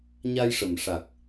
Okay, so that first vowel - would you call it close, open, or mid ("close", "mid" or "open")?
open